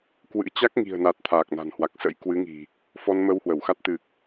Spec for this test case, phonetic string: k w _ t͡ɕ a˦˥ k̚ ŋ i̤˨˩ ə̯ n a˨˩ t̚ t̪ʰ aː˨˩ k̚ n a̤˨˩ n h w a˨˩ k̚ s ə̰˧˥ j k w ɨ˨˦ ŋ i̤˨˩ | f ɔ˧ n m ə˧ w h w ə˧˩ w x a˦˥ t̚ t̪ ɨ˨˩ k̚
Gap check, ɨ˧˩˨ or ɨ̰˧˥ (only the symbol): ɨ̰˧˥